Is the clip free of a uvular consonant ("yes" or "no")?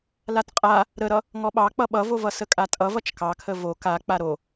no